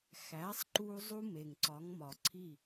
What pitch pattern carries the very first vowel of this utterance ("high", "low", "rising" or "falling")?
rising